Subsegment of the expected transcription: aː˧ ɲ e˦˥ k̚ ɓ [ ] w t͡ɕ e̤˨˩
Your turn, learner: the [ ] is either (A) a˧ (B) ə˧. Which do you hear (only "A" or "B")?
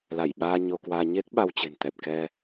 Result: A